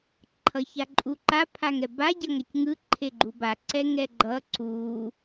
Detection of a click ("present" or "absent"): present